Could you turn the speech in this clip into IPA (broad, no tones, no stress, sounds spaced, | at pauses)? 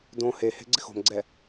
d õ h e h e̤ ɡ͡ǀ ɪ x o̤ m ɡ͡ǀ ɛ